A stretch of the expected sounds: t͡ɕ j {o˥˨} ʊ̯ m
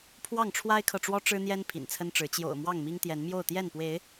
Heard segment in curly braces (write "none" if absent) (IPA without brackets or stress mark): o̰˨˩